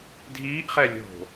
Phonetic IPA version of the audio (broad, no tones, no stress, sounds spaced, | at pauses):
dʱ iː ʔ χ ɛ lʲ o̤